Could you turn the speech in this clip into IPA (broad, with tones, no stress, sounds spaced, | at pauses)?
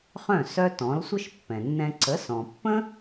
χ œ̃˥˩ s œ˥ t ɔ̃˩˥ l sʷ ə˥ ʃ pː ɛ̃˩ nː ɛ̃˧ ǀ ə˩˥ s ɔ̃˩ pː ə̃˥